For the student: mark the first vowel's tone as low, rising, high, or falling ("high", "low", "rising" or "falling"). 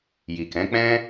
low